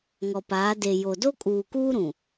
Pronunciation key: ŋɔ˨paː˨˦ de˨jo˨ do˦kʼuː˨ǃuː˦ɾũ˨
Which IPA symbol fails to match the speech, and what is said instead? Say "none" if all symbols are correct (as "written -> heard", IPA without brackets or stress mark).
ǃ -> k